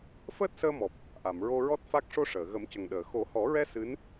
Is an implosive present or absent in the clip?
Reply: present